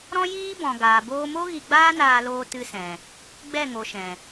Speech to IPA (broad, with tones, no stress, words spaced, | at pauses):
ɾɔ̃˦jiː˦bɔ̃˨ ɡaː˨boː˧mo˦ ɣi˧ɡ͡baː˦naː˧loː˧ tɨ˧sɛ̃˨ | ɡ͡bɛ˦˨ŋo˨ ʃɛ̃˨